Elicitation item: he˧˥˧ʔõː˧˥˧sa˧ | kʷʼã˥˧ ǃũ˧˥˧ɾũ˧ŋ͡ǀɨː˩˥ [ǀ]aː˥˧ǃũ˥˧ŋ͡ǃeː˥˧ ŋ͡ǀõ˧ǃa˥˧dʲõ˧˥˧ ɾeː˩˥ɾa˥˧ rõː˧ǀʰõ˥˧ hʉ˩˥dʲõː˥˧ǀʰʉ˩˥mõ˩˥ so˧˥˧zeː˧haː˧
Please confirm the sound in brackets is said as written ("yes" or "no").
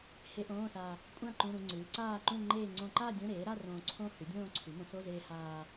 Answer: yes